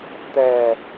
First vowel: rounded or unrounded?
unrounded